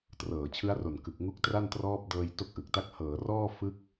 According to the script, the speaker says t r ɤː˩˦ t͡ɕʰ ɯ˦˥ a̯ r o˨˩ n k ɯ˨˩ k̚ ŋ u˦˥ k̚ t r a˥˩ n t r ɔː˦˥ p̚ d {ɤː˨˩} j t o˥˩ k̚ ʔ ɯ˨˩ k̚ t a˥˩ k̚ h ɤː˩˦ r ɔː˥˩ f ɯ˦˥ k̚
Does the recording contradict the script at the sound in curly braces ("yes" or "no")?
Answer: yes